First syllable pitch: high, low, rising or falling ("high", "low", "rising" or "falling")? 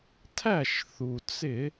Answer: falling